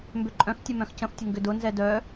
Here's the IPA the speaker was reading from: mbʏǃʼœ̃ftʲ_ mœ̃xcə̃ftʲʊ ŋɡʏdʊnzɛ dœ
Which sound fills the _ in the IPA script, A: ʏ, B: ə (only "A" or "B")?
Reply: B